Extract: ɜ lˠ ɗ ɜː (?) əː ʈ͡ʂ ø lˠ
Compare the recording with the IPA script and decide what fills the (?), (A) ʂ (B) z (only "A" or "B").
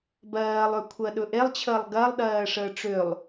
A